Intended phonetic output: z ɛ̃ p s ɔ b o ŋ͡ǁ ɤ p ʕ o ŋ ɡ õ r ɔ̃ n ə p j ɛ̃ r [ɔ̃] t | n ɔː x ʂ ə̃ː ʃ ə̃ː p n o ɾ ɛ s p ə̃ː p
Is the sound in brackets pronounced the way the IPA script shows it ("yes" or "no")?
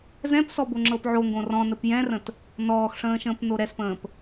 no